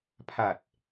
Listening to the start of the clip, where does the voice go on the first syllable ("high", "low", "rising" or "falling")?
low